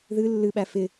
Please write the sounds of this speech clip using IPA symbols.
ð ɨ lː ɨ ɓ æ f ɪ

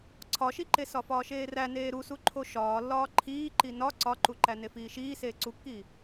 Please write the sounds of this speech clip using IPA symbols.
ǀʰ ɒ ʃ i ǃ e s ɒ f ɒː ʃ eː r æ n eː ɾ u s u ǃʰ o ʃ ɒː lː ɒː ǃʰ iː ǃ i n ɒ ǀ ɒ ǃ u ǃ æ n e f iː ʃ iː s eː ǀ u kː iː

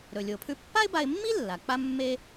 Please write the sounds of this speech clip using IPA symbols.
ɾ ɵ˩ lʲ o˩ pʰ ʉ˧ pː a˥ ɪ̯ b a˧ ɪ̯ mː i˥ lː a˩ k͡p a˥ mː e˥

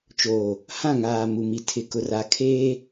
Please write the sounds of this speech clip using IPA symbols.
t͡ʃ oː˨ | h ã˦˨ ŋ aː˨ m u˨ m i˨ tʰ ɪ˨ k ʊ˨ r a˨ kʰ eː˦

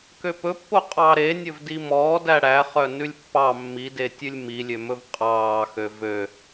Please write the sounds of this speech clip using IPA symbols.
k ø p ɵ pː o qʼ ɑː ɾ e nʲ ɵ v d i m ɔː d æ ɽ æ χ œ n ʉ lʲ pː ɑ mː i d e tʲ ʉ lʲ m i lʲ ø m ɵ v qʼ ɑː x ø v ø

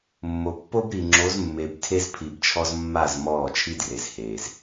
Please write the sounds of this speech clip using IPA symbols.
mː o˨ pː o˦ b ɾ i˨ ŋ͡ǁ o˨˦ z mː e˨ b tʰ e˦ z pʰ i˨ b t͡ʃʰ ɔ˦ z mː a˦˨ z m ɔː˦˨ t͡ʃʰ i˦ d r e˨ z h eː˨ z

